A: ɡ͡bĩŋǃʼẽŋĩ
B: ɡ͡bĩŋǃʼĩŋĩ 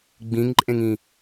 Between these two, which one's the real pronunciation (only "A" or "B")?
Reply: A